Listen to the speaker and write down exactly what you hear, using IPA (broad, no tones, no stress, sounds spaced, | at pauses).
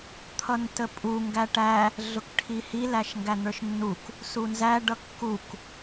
t̪ʰ ʌ n t ə pʼ u ŋ ɡ æ ʈ æ | ɮ ʊ k ʈʰ i h i l æ ʃ ŋ ɡ æ n̪ ə˞ ʃ nː u k | s u n z æ ɖ ʌ kː u k